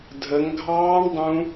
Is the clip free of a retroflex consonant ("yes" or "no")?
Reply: no